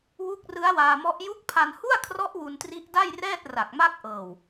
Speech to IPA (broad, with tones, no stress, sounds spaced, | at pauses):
w u˦˥ k̚ r ɯ˦˥ a̯ w aː˧ m ɔ˦˥ ʔ j u˦˥ k̚ pʰ a˧ n h u˥˩ a̯ kʰ r ɔ˦˥ ʔ w u˧ n t r i˦˥ ʔ d a˥˩ j r ɛː˥˩ t̚ r a˨˩ k̚ m a˥˩ k̚ ʔ ɤː˨˩ w